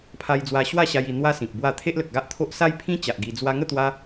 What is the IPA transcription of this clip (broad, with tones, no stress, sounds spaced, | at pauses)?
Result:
pʰ a˧ j d͡z w a˧ ɕ w a˥˧ ɕ a˧ j i˧ n̪ w a˦ s ĩ˨ k̚ b w a˥˧ t̪ʰ e˦ ʔ l ə˨ k̚ ɡ a˦ ʔ t̪ʰ o˦ ʔ s a˦ j pʰ ĩ˦ t͡ɕ a˨ ʔ ɡ i˧ d͡z w a˧ ŋ ə˥˧ t̪ w a˧